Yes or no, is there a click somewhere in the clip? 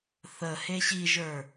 no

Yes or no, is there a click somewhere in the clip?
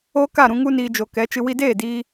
no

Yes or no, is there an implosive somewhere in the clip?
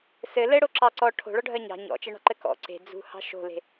no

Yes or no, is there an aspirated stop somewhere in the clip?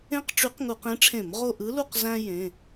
yes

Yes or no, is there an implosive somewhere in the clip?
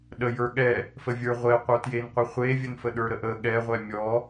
yes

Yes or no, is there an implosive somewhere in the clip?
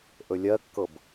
no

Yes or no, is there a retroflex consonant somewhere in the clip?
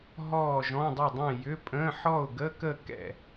no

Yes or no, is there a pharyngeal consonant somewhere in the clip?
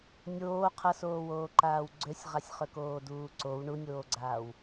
no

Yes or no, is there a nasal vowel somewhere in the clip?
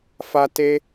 no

